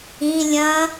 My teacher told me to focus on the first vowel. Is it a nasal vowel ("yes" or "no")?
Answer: yes